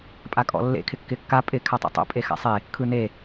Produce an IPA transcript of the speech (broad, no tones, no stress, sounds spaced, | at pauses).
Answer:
pʼ a kʼ ɔ̰ lː ḛ kʰ ɪ kː ɪ kː a pʼ ɪ kʰ a tˤ ḛ tˤ o̰ pʼ e x a̰ sˤ e | kʰ ɯ n e